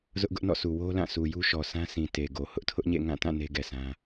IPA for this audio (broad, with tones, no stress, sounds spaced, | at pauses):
z ʊ˦ ʔ ɡ ʊ˦ ʔ n ɔ̰˦˨ s u˨ w o˦ l ã˦˨ sʰ u˨ j u˦ ʃ ɔ˨ sʰ ã˦ s ĩ˨ t e˨ ɡ o˨ h ʊ˦ ʔ tʰ ʊ˦ ʔ ɲ ḛ˦˨ ŋ ã˦˨ t ã˦˨ n e˦ ɡ ɛ˨ s ã˦